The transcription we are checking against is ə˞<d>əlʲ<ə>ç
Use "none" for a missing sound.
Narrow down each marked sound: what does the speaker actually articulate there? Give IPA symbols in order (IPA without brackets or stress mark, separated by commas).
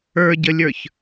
ɟ, ə˞